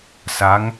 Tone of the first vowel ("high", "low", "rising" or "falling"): rising